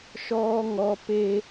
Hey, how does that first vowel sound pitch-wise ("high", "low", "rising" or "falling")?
high